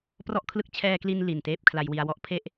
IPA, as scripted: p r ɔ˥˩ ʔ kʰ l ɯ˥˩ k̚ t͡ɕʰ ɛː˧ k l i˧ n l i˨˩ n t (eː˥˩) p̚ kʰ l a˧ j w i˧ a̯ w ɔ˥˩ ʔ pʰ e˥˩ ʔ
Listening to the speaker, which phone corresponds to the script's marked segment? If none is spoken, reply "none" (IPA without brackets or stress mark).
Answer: eː˥˩